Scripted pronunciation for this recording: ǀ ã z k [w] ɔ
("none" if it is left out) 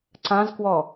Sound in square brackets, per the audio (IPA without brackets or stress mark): w